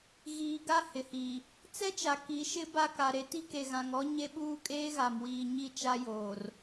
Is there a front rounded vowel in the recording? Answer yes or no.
no